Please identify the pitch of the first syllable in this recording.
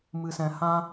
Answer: low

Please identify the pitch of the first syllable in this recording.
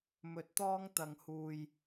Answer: low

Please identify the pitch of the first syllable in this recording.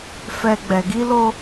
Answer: low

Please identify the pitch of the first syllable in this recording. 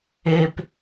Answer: low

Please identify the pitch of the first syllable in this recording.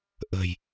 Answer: low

